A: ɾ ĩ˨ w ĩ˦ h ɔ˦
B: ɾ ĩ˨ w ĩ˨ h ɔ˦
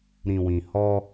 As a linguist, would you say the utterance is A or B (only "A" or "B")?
B